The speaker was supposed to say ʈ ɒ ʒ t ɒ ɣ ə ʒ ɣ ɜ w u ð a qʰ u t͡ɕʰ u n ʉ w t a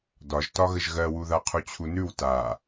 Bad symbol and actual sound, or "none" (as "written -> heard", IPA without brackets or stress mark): ʈ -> d